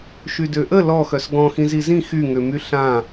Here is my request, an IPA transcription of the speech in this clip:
ʃydøʔə lɔxœs ɡɔ̃ xĩzizĩ xyŋømy ɬã

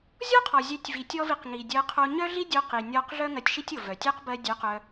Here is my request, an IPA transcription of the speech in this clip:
zʲɔ˦qʰɔ˨zʲœ˨˦tʲ vi˨tʲɔ˦vi˧qŋi˨ dʲɜ˧qʰo˧ ɲœ˦ɮi˦dʲo˧qi˨ nʲɔ˧qɮœ˦ ŋɜ˧tʲʃi˦tʲ o˨vœ˨tʲɜ˦q bɜ˧dʲœ˨˦ qœ˧

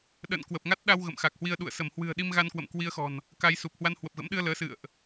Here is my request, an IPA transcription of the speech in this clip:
ɗə̰ː˧˨nkwə˨˩p̚ŋa˦˥t̚ɗa˧w ɣə̰˧˨mxa˨˩k̚hwi˧ə̯ɗṵ˧˨ə̯ sə˧˩mhwɨ̤˨˩ə̯ɗi˧mɣa˧n kwə̰˧˨mkwi˧ə̯xɔ̤˨˩n | ka˧jsu˨˩p̚ hwa˧nhwə˨˩p̚ɣə̰˧˥mɗɨ˧ə̯ ləː˨˦sɨ̰˧˨ə̯ʔ

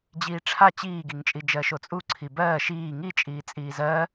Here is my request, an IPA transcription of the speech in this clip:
d͡ʑiːʈ͡ʂʰa t͡ɕiːɡiŋt͡ʃʼi d͡ʒɜʃot͡sʼu ǀʰibɜː ʃiː ŋit͡ʃʼiː t͡sʼiːzɜ

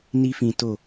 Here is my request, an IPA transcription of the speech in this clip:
ni˧fĩ˨ to˨

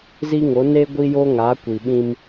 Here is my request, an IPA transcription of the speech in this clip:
zi˦ŋo˨˦ ne˦ ɡʷi˦jo˦ŋa˨˦ kʷi˨ɓĩ˦m

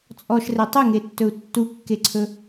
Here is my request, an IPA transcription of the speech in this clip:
t͡sʼɔʃre tˤɛŋetːɵu̯ tːukːeǀʰɵ

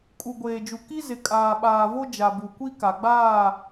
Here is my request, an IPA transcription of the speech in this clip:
kʼu˨ɡʷeː˨d͡ʒu˨ ki˦ zɪ˨kʼaː˨ɓaː˨vo˦ d͡ʒa˨bu˨kʷi˦ ka˨ɡ͡baː˦˨

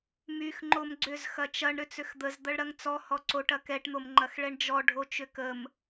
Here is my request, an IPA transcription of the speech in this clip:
myx ŋ͡ǃomɡ͡ǀʏz xɐt͡ʃɐɳ ɾʏt͡sʏxd̪əz d̪ɐɭɾɐŋt͡sɔ hɔǀoʈ ɐkɛʈ n̪omŋ͡ǃɐxɭɛɳd͡ʒɔ ɖʱot͡ʃʏkəm

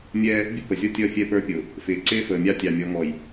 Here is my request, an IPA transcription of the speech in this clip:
mʲɛ˦ | bʲʊ˦pə˨zʲɔ˦ tʲʌ˦˨ fʲɛ˦˨pə˞˦pʲʊ˨ | fɪː˨ǀɪː˦fəː˨ mʲɑ˦tʲɑ˨mʲɔ˨˦ŋɔ˨j

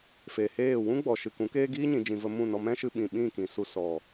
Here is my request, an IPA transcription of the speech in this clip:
fe˨heː˦˨ wũ˦ ɡ͡bɔ˨ʃɨ˨ kũ˨˦keː˦ ɡiː˦ɲĩ˨d͡ʒĩ˨ və˧ mũ˦˨nɔ˧ mɛ̃˦ ʃɨ˧ɓĩ˨ ɓĩ˦˨kĩ˨ su˧ sɔ˨

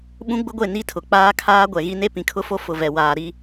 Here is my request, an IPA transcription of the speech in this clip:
ɓũ˦ɡ͡bʊ˦ɡʷe˦˨ ni˦tʰʊ˨k͡paː˦kʰaː˦ ɡʷɛ˨ɣi˦ne˦ pĩ˨kʰʊ˦fo˦ fʊ˨vɛ˨ waː˨ɾi˦

